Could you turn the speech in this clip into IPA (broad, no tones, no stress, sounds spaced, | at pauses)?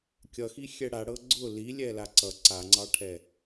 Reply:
kʲ ʌ x i xʲ ɛ ɽ a ɽ ɤ ɡ͡ǀ ʊ l i lʲ ɛ l a ǀ ʌ ǀ a ŋ͡ǀ ɑ ʈʰ ɛ